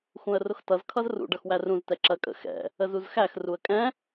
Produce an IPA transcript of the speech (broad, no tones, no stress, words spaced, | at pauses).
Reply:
xũə̯rʊxtʌz kʰʌzrṵ ɖʌxwærũz tɛǁɜkʼə̰ xɛ̰ | əzuzxæx ruə̯kʼɛ̃